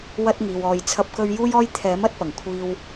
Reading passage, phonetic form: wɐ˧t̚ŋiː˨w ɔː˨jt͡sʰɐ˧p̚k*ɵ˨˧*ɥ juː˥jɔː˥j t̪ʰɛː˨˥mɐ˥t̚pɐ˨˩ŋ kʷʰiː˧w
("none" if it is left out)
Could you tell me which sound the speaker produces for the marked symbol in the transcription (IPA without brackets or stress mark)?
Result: ɵ˧